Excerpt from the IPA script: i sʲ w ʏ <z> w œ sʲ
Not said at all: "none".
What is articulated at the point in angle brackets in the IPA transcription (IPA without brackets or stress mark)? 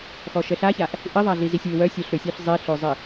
none